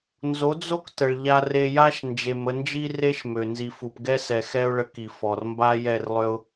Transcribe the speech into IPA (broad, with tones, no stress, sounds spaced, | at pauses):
n z o˨˦ d͡z o˦ k t ə˨ ɭ ʎ a˧ r e˧ j a˦ ʃ n d͡ʒ e˨ m ə˧ n d͡ʒ i˦ r e˦ ʃ m ø˨ n z i˨ f u˨ p ɡ ɛ˦ s ɛ˨ x ɛ˦ ʊ̯ ɭ ə˧ k i˨ f ɔ˨ r m b a˦ j ɛ˦˨ r lˠ ø˦ ʊ̯